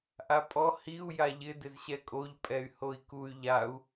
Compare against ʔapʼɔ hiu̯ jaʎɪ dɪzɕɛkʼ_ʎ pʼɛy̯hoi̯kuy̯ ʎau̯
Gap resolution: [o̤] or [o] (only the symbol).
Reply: o